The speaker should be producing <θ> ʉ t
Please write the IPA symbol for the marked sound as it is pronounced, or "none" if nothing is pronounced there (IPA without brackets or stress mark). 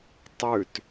tˤ